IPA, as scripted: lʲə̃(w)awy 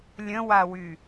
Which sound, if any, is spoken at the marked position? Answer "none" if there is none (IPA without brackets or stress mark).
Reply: w